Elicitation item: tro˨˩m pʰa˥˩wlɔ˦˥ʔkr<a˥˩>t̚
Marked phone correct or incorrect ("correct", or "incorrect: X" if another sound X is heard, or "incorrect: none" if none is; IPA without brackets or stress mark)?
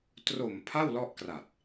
incorrect: a˨˩